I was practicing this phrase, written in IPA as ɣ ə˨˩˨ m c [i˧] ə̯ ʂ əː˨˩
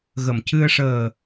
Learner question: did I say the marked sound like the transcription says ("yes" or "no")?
no